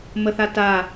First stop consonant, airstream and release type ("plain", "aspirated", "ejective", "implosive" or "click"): plain